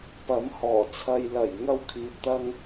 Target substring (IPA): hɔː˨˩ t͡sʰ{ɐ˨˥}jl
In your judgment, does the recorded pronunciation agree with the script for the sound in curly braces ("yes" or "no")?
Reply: no